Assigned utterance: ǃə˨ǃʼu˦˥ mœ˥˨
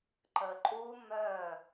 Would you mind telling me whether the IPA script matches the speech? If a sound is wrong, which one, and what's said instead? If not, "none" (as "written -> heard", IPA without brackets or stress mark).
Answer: none